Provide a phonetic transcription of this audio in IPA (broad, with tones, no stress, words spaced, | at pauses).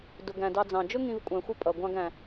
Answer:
dʊ˩ɡæ̃˩ dɑ˨d͡zɑ̃˩ d͡ʒʊ˦ŋĩ˨vkʷʼæ̃˩ xʷɪ˦pʼʌ˩ ɡʷɑ̃˨ɡæ̃˩